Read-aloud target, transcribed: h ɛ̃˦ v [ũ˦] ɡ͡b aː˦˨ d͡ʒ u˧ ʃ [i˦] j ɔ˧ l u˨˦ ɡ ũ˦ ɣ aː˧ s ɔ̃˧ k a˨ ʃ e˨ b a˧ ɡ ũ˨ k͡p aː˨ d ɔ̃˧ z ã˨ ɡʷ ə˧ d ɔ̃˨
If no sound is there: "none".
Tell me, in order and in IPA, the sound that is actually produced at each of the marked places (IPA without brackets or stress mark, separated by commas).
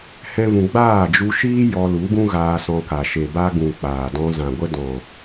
ũ˧, iː˦